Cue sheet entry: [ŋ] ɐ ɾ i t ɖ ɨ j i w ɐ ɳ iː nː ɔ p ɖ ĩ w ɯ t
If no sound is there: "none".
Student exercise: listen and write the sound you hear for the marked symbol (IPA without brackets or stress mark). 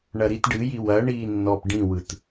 ɳ